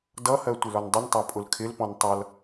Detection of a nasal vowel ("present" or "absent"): present